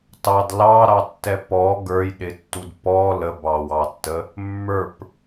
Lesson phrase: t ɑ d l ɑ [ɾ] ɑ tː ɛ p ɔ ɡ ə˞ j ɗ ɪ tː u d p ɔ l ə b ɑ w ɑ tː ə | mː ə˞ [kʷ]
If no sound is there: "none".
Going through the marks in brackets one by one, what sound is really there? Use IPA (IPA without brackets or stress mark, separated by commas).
ɾ, p